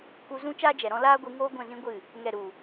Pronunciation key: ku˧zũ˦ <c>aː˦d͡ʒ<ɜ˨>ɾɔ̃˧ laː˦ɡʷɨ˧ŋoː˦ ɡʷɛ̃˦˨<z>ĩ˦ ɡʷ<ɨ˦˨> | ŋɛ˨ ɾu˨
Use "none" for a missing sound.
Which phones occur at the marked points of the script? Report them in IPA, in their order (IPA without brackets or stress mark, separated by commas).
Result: t͡ʃ, ɛ˨, z, ɨ˦˨